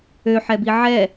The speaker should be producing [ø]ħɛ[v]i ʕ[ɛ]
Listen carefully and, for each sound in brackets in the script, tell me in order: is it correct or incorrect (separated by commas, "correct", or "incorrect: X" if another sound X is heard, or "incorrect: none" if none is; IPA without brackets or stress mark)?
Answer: correct, incorrect: b, correct